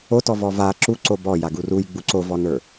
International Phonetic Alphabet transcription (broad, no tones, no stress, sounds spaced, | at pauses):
o t ɔ v ɔ v a ǁ u ǀ o b ɔ j a ɡ u r u j ɡ͡b u ǀ o v ɔ n ə˞